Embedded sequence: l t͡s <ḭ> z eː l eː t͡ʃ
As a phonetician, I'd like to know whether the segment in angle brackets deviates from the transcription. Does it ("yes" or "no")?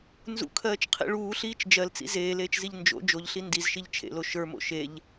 no